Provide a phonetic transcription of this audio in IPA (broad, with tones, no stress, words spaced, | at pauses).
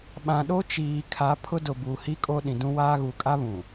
ɓã˨ɗo˦t͡ʃiː˨kʰa˨˦ pʰʊ˦dʊ˨bu˨ hi˦kʼo˦ɗĩ˨ dũ˦waː˦ ɣu˨kʼa˦βũ˨